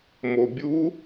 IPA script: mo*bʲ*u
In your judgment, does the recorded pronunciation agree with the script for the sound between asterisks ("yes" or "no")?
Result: yes